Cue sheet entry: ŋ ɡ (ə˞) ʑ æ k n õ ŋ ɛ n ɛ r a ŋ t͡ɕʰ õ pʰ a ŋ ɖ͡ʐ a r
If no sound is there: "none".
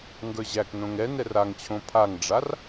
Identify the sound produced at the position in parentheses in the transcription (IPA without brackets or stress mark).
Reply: ə˞